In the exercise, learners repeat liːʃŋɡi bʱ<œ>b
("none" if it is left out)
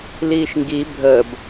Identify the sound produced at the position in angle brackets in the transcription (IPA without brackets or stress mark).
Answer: ə